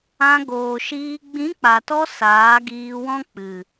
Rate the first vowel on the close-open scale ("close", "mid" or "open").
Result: open